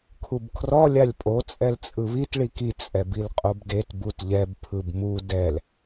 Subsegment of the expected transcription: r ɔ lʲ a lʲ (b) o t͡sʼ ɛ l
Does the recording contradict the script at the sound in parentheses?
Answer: yes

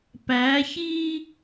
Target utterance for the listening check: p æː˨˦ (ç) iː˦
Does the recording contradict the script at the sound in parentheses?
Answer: no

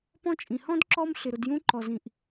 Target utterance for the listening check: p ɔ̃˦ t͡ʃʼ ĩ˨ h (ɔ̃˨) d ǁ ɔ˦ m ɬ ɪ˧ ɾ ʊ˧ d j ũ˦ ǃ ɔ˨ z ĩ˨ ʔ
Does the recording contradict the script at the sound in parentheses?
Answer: yes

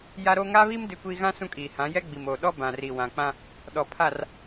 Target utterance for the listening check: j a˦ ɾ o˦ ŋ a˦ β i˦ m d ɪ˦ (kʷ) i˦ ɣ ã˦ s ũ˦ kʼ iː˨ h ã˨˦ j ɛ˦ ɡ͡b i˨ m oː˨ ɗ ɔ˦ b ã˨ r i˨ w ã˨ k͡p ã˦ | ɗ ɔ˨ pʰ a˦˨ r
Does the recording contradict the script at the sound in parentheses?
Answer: no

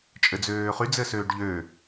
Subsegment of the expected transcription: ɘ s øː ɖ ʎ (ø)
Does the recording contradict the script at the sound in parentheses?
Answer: no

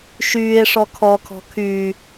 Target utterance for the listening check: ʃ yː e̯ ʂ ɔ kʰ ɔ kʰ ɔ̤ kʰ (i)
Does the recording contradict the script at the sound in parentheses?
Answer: yes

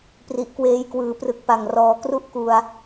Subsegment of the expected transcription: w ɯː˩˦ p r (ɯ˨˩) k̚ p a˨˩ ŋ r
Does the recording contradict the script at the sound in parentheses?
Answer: no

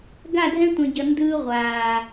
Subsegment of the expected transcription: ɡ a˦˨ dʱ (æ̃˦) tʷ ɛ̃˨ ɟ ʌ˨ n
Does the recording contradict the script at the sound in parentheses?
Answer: yes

